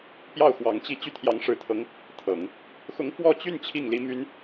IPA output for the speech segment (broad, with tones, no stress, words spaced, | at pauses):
pjɑ˥˩ʊ̯xwɑ˧˥ŋt͡ɕi˥˧ t͡ɕy˥˩t̪ʰjɑ˧˥ŋ ʂɻ̩˧˥t̪ʰɤ˧˥ŋ | t̪ʰɤ˨˩˦ŋ | xʊ˧˥ŋ fwɔ˥˧t͡ɕy˥˧n t͡ɕʰi˥˩ŋli˥my˥n